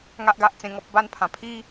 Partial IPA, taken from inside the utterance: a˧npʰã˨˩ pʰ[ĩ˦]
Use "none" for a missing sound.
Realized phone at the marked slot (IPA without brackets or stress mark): i˦